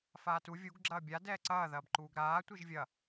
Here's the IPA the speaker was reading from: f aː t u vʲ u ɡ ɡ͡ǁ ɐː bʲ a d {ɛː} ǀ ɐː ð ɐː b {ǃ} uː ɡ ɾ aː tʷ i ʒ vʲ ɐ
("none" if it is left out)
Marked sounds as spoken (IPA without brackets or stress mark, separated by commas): ɛː, ǃ